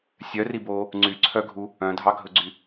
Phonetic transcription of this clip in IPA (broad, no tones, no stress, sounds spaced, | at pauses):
sʲ œ r i b oː | ŋ͡ǀ y ǀʰ œ ɡʱ u | œ̃ dʱ ɑ ɡʱ ɵ ɡ͡ǀ y